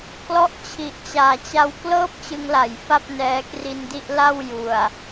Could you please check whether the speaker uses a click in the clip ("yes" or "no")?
no